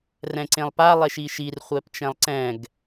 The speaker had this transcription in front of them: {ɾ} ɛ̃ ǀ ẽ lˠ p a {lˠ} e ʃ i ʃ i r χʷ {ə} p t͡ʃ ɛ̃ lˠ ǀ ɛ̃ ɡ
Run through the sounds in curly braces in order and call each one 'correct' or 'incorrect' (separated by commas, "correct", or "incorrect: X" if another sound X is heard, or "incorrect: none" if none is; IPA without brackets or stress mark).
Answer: incorrect: r, correct, incorrect: ɛ